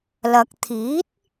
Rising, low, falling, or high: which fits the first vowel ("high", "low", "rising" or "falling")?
low